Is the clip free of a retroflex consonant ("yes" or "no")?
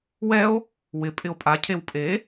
yes